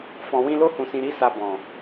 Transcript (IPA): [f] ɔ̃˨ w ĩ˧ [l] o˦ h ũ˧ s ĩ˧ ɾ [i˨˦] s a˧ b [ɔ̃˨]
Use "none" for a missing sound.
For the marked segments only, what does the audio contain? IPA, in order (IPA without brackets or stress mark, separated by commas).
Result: f, l, i˦, ɔ̃˨